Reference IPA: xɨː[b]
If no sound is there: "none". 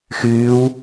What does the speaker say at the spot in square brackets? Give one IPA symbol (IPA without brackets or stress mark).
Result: w